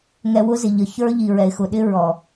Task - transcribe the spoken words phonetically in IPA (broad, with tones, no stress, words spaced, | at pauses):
ŋɛ˧wʊ˦zɪ˨ ʎə˨ çə˞˦ ʎi˨ɹɛ˨ɪ̯xʊ˨ ɗɪ˦ ɹɔ˨